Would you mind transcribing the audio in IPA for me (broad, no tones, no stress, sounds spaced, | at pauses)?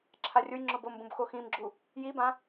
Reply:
ǁʰ a rʲ ʊ j ŋ͡ǁ ʊ b o m b ũ b x o x ĩ m ɡ͡ǁ u | j i b ã